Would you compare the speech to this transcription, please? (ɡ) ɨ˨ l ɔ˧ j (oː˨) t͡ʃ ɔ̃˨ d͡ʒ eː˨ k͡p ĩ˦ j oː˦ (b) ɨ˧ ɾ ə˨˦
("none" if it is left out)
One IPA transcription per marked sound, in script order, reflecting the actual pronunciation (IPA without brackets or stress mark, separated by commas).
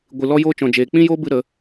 ɡʷ, oː˧, b